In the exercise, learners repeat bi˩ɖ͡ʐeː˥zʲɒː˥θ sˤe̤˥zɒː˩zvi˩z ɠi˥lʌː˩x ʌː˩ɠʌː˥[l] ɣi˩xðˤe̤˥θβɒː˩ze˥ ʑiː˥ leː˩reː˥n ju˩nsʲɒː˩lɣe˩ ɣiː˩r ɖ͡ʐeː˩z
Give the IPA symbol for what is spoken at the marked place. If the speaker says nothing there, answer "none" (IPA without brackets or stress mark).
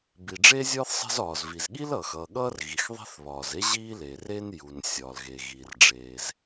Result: r